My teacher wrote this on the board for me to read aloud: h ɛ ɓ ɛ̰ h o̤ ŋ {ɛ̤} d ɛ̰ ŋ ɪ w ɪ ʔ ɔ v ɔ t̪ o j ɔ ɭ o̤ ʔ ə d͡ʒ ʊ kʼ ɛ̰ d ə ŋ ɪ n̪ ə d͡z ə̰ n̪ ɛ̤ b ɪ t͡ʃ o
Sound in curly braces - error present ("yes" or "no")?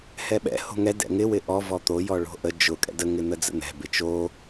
yes